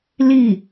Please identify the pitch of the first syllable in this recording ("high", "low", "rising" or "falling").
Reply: falling